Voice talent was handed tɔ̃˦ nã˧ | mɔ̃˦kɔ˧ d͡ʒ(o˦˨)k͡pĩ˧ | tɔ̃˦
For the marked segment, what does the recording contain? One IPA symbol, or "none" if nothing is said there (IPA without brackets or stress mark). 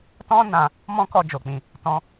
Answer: o˨